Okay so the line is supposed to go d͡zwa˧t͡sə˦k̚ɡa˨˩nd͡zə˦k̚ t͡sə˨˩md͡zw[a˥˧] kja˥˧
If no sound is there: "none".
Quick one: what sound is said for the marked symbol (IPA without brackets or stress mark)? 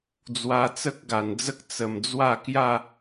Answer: a˥˧